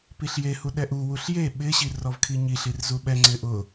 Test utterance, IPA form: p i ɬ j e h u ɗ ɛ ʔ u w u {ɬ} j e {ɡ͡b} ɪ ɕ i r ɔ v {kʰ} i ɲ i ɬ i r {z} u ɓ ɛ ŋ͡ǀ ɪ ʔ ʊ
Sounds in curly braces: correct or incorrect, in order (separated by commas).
correct, incorrect, correct, correct